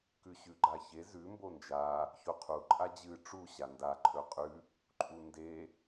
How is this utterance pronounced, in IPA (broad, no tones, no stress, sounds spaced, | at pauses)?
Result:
k ʉ ɕ ʉ ɡ͡ǃ a ç e z ʉ m b o n d͡ʒ a | ç o qʰ u ǃʼ a d͡ʑ ɨ ʈ͡ʂ u ɕ a n d a ǃʰ ɵ qʼ ʉ | ǃʼ u n d e